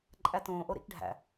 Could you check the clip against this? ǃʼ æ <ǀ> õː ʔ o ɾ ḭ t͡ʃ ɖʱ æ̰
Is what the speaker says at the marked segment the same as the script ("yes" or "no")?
no